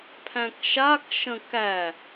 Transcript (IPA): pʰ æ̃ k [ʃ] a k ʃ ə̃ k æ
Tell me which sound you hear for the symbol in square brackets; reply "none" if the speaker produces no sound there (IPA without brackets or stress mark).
ʃ